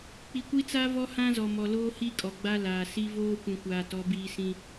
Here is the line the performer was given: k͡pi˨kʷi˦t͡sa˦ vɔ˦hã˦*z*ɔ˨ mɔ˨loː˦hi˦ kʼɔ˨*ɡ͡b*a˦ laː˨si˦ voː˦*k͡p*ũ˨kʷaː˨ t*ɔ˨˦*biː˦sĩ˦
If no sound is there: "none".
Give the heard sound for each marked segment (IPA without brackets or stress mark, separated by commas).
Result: z, ɡ͡b, kʷ, ɔ˨˦